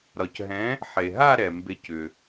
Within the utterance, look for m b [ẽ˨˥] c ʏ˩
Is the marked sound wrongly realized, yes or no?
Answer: yes